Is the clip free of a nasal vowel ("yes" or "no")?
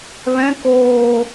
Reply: no